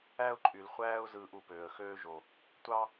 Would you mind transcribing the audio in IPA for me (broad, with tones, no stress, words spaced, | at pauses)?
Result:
æ˦ʊ̯ǃʼy˨lχʷæː˦ʊ̯ zɯː˧ʔu˨pøː˨ə̯ xøː˧ʒo˨ | tʷɑ˦